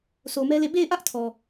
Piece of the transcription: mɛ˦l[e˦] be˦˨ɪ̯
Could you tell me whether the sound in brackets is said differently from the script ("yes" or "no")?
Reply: yes